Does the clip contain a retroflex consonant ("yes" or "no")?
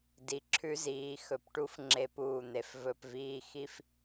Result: yes